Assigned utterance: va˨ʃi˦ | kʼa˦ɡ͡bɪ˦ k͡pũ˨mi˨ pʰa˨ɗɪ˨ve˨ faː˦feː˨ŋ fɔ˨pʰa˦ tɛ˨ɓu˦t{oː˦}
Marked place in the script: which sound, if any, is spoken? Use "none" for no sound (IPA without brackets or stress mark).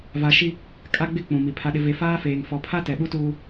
uː˦